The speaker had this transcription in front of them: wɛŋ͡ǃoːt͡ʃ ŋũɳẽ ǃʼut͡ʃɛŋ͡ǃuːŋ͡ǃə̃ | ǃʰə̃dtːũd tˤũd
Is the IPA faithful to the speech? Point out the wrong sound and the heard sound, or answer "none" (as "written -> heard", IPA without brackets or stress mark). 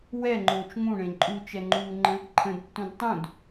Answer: none